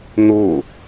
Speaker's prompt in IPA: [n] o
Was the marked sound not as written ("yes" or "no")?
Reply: no